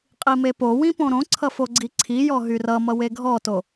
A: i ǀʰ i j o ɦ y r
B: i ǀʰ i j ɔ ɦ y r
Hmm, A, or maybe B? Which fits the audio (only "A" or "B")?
B